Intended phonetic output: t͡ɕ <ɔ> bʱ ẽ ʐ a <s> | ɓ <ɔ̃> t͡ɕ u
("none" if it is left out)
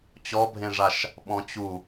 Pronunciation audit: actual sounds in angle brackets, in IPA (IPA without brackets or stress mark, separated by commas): ɔ, ʃ, ɔ̃